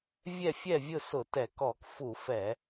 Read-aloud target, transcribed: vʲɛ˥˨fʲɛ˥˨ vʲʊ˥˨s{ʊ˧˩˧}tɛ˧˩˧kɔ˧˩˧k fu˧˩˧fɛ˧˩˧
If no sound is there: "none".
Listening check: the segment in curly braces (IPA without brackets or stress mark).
ʊ˧˩˧